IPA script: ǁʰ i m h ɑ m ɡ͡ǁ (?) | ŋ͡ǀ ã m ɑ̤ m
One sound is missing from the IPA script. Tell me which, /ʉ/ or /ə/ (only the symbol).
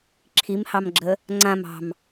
ə